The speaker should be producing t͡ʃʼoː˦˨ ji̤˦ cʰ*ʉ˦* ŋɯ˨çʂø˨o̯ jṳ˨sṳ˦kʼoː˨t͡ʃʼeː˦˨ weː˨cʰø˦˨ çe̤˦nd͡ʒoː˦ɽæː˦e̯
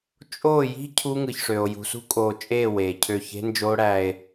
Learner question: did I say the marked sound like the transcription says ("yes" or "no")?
no